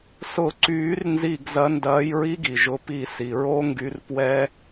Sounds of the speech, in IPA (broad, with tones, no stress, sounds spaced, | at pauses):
s ʊ˧˩ ǀ yː˨˩˦ r n z i˧˩ ɡ z ɐ˨˦ n d ɐː˨˦ j ɹ i˦˥ ɡ i˩ ʒ ʊ˨˦ p i˧˩ s i˩ ɹ o˦˥ ŋ ɡ y˨˦ r p w ɛ˦˥